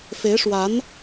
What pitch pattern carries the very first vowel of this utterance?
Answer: rising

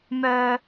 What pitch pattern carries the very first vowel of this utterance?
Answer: high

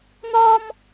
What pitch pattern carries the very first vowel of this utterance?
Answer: high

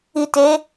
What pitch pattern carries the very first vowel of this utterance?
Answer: low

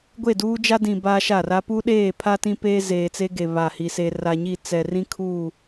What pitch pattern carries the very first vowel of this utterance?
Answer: falling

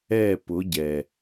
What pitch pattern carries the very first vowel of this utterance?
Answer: falling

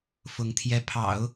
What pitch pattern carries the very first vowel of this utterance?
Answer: rising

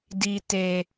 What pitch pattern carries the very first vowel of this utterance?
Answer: low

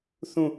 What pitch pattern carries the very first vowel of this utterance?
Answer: falling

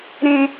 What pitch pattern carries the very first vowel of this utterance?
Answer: high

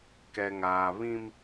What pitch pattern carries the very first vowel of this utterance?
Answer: low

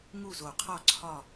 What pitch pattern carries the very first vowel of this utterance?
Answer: falling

